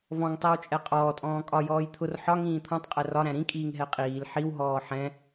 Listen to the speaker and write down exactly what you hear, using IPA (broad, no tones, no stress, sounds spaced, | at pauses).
v ɔ̃ ŋ tˤ ɜ w t͡ʃʼ ɛ qʼ ɔː tʼ ɔ̃ː kʼ ɒ j ɔː j t̪ʰ ʊ r ħ ɒ ŋ ĩː t̪ʰ ɔ̃ tˤ qʼ ɛ r ɒ ɾ æ̃ ɾ ĩ kʼ iː ŋ ɦ ɛ qʼ iː l ħ i w ɦ ɔː ħ ɛ̃